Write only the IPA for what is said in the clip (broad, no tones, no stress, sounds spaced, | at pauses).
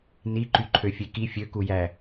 n i ǃ y ǃʰ ø fʲ e k i fʲ ø k u j æ